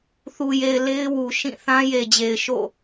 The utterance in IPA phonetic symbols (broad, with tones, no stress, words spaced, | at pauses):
θu˨je˨ɪ̯ le˦ɪ̯ wu˨ ʃĩ˦˨ θã˦je˨d͡ʑe˨ɪ̯ʃo̰˦˨